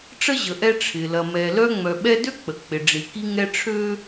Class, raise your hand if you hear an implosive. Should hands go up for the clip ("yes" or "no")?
yes